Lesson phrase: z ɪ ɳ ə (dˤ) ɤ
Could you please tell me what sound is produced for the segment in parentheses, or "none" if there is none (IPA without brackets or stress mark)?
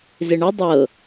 dˤ